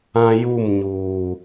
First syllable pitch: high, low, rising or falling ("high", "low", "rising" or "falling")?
high